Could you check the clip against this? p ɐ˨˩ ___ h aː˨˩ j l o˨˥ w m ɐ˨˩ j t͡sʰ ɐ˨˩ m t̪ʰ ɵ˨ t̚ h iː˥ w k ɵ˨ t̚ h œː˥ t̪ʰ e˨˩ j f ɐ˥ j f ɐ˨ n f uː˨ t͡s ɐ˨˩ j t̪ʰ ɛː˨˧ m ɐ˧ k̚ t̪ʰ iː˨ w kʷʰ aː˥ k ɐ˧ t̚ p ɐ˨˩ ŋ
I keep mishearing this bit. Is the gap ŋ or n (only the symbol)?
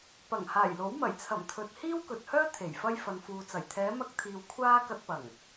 ŋ